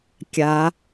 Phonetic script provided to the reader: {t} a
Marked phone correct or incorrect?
incorrect